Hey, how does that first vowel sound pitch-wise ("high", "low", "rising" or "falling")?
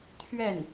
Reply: falling